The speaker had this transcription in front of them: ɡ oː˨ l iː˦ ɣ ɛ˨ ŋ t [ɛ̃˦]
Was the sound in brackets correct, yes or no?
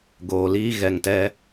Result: no